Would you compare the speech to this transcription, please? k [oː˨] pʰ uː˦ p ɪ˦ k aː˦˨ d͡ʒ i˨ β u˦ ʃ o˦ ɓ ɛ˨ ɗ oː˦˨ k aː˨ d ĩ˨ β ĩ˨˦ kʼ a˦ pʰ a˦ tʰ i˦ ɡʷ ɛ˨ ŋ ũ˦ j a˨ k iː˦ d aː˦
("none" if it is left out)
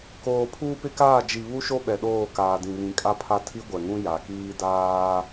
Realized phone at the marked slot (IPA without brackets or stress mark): oː˨